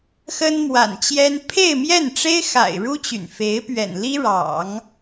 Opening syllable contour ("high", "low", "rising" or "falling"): high